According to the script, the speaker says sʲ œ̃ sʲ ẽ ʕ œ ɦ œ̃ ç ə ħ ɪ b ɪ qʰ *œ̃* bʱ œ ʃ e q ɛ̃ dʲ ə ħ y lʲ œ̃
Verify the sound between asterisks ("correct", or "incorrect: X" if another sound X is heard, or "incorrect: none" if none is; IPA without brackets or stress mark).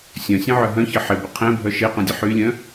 incorrect: ɛ̃